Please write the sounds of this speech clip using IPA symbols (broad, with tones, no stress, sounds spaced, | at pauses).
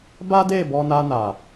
b a˦ d e˦˨ b ɔ˧ n a˧ n a˨